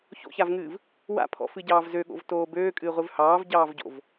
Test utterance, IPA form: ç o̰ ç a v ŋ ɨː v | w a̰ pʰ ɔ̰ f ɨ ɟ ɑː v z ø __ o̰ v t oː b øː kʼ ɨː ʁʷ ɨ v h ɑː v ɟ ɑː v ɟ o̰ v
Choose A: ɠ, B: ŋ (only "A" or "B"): A